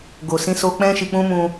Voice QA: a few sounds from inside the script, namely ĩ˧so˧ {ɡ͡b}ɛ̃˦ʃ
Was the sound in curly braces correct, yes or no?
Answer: no